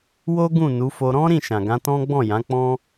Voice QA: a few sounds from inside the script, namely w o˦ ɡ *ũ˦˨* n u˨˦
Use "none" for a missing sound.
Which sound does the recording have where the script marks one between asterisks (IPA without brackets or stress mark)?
ũ˦˨